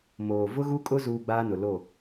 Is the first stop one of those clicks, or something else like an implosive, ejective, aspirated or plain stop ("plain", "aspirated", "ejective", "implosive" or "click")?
ejective